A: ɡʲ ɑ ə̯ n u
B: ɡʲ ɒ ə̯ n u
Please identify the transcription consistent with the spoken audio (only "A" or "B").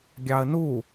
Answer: A